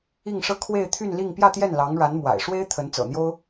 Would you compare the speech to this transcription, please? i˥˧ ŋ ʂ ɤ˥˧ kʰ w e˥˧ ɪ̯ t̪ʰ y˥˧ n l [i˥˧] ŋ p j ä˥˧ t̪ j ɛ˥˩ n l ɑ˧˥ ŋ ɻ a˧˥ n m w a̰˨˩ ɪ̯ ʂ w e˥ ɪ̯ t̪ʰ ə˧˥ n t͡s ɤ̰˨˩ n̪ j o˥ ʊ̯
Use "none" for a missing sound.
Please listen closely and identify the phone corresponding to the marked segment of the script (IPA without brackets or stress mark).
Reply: i˥˧